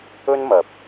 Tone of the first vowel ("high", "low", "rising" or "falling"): high